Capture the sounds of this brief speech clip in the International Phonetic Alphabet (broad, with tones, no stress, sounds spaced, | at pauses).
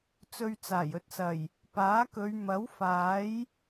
t͡s ɵ˧ ɥ t͡s aː˨˩ j ɵ˧ t̚ s ɐ˨˩ j | p aː˨˥ k ɵ˨˧ ɥ m ɐ˨˥ w f aː˨˥ j